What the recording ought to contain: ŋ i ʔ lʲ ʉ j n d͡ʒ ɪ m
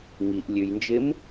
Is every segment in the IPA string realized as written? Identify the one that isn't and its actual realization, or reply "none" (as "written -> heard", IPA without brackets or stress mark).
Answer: none